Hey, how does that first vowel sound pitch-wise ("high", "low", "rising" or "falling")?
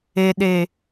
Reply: low